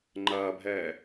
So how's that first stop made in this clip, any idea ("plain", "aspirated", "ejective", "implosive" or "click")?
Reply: click